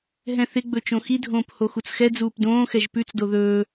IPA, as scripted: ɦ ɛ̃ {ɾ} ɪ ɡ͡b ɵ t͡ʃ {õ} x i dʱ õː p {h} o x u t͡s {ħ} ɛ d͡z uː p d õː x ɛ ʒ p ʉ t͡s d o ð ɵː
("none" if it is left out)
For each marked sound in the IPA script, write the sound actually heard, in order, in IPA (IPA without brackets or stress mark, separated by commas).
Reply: θ, õ, h, x